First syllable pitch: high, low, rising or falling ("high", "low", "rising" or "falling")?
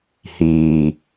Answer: low